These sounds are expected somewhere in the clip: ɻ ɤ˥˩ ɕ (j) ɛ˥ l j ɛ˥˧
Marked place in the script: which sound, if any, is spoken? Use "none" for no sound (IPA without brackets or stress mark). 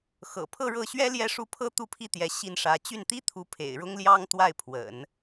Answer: ɥ